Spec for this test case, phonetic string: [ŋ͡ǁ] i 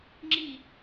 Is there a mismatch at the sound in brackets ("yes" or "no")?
no